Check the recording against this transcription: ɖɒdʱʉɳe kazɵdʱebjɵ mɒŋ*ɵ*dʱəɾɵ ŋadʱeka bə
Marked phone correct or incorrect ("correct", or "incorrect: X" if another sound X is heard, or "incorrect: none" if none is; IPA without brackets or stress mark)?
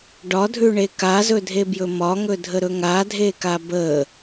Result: correct